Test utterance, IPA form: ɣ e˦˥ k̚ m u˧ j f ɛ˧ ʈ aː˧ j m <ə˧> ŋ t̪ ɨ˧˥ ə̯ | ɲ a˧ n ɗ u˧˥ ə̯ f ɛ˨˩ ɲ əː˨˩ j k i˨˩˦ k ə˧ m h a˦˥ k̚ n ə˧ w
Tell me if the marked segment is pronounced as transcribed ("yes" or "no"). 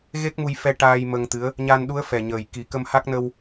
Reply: yes